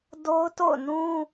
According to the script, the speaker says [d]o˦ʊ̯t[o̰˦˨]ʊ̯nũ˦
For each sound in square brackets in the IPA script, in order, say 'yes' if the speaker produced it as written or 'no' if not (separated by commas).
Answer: yes, yes